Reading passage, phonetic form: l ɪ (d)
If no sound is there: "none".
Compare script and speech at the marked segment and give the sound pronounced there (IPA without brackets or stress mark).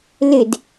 d